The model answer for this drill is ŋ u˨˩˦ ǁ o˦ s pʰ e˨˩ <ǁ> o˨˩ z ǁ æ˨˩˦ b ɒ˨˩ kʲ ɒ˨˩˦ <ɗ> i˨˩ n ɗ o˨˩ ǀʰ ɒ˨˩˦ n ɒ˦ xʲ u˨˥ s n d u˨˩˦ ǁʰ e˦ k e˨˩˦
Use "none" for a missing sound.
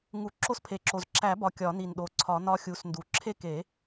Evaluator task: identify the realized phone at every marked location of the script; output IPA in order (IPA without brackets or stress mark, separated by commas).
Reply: ǁ, n